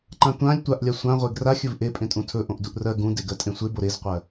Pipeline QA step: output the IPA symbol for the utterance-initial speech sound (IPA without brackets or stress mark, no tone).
ǃ